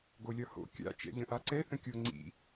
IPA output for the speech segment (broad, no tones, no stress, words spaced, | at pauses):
ɡolʲɒho̰ kʲa̰ t͡ʃɛ̰ʎə̃ʔaǀɛ θə̃kʲo ŋ͡ǀḭ